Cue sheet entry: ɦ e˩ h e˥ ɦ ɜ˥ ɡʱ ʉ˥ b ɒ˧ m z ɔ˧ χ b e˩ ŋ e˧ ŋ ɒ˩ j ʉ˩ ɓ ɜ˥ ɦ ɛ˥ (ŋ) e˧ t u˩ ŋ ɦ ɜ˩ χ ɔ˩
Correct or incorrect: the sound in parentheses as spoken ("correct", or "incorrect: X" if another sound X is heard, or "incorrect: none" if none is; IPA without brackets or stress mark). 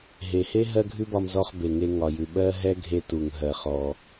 incorrect: ɡʱ